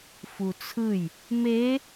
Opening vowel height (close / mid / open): close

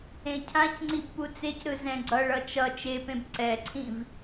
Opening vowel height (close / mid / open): mid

